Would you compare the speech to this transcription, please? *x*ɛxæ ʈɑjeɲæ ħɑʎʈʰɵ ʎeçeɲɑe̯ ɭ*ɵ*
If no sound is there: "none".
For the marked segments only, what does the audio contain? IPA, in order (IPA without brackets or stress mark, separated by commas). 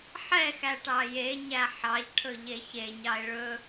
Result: ħ, ɵ